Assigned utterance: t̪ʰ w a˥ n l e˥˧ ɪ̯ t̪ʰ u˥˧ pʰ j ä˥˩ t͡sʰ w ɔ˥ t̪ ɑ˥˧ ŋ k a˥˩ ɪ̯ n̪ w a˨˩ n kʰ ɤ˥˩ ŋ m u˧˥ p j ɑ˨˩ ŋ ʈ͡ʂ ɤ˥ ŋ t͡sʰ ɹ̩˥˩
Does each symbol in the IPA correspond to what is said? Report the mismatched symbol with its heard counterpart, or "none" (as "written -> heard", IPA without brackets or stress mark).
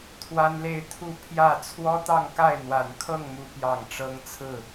none